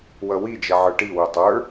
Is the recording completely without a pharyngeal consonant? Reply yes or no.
no